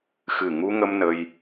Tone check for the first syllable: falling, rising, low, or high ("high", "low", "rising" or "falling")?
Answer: low